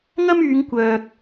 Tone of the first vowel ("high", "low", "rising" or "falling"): high